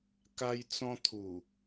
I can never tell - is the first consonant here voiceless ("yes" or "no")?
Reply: yes